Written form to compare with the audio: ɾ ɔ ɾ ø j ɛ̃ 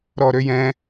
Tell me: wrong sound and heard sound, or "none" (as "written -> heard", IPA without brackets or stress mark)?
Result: none